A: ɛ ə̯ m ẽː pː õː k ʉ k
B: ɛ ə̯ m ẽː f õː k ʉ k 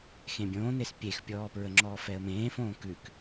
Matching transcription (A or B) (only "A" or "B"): B